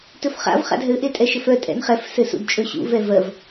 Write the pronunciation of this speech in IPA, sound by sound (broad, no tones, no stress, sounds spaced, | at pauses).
t ɵ f χ a̰ v χ a̰ d ɦ ɘ ʔ e tʼ ɛ ʃ ɘ f œ tʼ ɛ̰ n χ ɛ f s ɘ s ṵ d t͡ʃʼ ɵ ɕ ṵ v ɛ v ɜ v